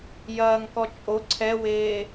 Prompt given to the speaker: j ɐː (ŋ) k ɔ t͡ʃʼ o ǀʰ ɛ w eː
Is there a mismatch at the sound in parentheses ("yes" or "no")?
no